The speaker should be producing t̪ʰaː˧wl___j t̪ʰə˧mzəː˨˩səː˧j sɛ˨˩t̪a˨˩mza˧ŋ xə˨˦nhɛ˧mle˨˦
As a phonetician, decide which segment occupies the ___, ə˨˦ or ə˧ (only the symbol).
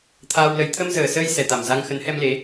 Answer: ə˨˦